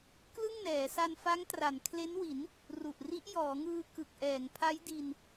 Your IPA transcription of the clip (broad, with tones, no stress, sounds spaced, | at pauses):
k l ɯ˥˩ ŋ n ɛː˩˦ s a˧ n f a˦˥ ŋ t r a˩˦ n kʰ l e˦˥ n w i˩˦ n | r u˨˩ ʔ r i˦˥ ʔ j ɔː˩˦ ŋ ɯː˧ k ɯ˨˩ k̚ ʔ ɛː˩˦ ŋ pʰ a˦˥ j d i˧ n